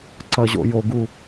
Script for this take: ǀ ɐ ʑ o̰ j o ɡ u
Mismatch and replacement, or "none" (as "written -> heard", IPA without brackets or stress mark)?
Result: none